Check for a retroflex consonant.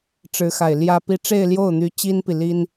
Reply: present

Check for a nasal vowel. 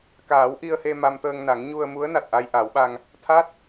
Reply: absent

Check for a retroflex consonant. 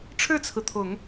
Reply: present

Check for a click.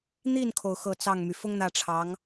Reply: absent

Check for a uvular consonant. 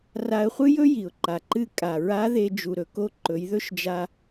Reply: present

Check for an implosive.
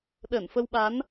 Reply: present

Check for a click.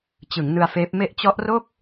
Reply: absent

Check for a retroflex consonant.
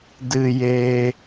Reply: absent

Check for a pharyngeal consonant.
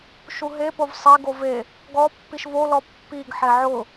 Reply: present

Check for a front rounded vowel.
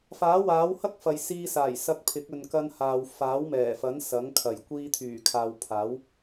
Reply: present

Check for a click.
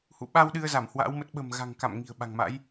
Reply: absent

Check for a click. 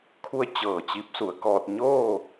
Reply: absent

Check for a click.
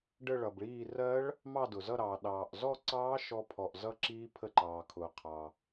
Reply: present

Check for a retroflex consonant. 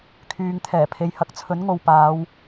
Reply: absent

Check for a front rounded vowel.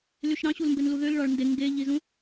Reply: present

